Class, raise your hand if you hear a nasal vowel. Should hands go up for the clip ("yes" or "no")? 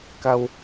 no